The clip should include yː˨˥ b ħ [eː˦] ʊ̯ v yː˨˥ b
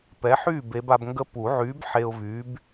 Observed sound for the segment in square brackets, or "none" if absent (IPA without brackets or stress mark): e˦